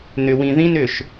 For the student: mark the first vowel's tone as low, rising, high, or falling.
low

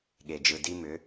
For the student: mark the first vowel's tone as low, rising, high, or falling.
low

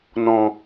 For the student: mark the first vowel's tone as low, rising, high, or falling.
low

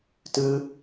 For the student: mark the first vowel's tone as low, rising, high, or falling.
high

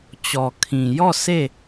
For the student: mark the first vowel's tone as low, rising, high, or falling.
low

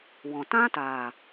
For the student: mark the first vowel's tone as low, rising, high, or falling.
low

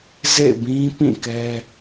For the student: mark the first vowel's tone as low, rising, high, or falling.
falling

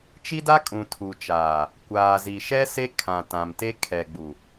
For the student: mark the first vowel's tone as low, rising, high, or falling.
high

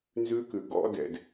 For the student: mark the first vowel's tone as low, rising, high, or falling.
high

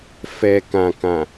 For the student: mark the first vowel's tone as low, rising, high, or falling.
low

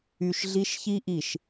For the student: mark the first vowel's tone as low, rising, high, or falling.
low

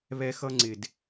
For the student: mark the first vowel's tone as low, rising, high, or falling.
high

